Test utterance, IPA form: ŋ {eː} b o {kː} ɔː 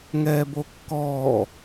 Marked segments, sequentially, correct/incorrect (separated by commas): incorrect, correct